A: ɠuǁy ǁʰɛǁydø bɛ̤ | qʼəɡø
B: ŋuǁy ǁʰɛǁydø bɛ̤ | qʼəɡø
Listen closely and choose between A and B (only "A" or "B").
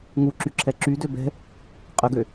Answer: B